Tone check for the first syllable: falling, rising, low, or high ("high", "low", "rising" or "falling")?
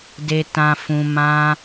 low